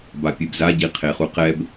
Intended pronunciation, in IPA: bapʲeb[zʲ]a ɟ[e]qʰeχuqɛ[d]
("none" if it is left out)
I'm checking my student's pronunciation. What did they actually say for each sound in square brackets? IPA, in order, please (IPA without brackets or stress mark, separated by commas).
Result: z, i, b